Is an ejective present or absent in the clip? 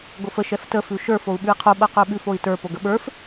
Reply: absent